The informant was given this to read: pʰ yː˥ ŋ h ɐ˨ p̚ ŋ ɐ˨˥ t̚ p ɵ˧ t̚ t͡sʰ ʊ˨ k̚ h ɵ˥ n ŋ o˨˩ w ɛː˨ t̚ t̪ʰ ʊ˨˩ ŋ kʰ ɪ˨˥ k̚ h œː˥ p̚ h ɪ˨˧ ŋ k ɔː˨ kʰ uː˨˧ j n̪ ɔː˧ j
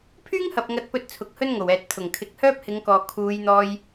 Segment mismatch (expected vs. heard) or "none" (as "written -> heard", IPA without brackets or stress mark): none